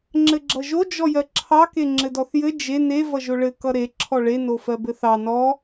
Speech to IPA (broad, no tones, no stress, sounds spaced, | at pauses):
ŋ͡ǁ ɘ ɡ͡ǁ ʌ ʒ o d͡ʒ ɔ j ɜ ǁʰ ɑ k e ŋ͡ǁ ɘ d ɔ θ j ɘ d͡ʒ e n e v ʌ ʒ o ɭ ɘ k ʌ ɾ e ǁʰ ɔ ɭ e n o f ɜ b ɘ θ ɑ n ɔ